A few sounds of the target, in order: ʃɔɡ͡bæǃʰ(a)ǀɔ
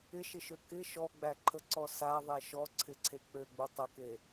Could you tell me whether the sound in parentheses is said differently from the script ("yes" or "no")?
yes